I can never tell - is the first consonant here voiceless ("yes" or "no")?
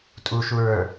yes